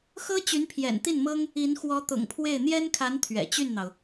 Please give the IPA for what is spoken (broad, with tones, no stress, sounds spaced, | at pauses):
x ɤ˥ t͡ɕ y˧˥ n pʰ j ɛ̰˨˩ n t̪ i˥˩ n m ɤ˥ ŋ | i˧˥ n x w ɔ˧˥ t̪ ʊ̰˨˩ ŋ pʰ w e˥˩ ɪ̯ n̪ j ɛ˥ n kʰ a˧˥ n t̪ʰ ɥ ɛ̰˨˩ t͡ɕ y˥˩ n n̪ ɑ˩ ʊ̯